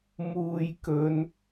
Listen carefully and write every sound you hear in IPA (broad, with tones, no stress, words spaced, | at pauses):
muː˨jkɵ˨˧n